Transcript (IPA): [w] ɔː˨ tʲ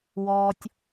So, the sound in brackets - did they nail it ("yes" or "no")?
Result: yes